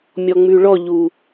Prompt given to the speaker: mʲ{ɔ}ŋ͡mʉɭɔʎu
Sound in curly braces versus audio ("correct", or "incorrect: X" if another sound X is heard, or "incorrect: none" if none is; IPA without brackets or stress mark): correct